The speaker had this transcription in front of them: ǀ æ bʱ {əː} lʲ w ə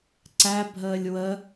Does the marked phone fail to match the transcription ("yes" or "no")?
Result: no